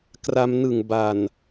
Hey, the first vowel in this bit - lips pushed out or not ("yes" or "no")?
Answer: no